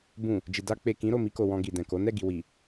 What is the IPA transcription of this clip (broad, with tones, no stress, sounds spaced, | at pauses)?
b ũ˨ | d͡ʒ i˨ d a˧ k͡p e˨ k ĩ˨˦ ɾ o˦˨ m i˧ k o˨ w ɔ̃˧ ɡ i˨ d ɛ̃˨ k o˨˦ n ɛ˦˨ ɡ i˨ w i˨